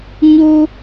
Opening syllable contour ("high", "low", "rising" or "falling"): high